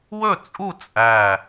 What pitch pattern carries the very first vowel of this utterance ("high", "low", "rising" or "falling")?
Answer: falling